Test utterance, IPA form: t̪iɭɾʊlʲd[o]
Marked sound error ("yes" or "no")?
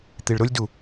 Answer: yes